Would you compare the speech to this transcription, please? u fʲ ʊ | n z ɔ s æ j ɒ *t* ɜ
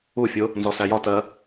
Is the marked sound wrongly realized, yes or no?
no